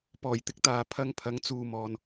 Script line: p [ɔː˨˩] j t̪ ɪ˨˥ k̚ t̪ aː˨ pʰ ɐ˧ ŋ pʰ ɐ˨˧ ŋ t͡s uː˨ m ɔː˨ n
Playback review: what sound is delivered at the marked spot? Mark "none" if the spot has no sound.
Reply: ɔː˨˩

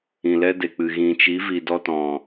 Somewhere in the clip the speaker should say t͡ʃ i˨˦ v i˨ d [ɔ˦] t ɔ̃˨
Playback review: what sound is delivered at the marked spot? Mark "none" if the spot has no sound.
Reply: ɔ˦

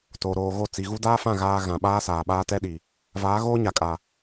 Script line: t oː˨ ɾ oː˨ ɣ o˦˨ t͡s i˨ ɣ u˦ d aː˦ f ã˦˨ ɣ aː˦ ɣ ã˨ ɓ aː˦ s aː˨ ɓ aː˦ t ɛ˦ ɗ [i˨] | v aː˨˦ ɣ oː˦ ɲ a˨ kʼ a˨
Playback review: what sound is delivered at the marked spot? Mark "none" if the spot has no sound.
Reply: i˨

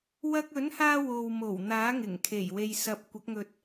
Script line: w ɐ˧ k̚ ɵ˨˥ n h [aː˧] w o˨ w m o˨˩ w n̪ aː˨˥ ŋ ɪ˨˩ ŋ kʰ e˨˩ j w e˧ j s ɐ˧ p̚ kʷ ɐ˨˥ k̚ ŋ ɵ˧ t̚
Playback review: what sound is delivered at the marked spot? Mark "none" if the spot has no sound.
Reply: aː˧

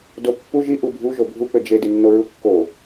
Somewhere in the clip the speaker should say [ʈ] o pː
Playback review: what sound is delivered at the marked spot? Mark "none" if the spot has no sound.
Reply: d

